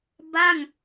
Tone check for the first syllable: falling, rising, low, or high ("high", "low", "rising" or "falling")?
falling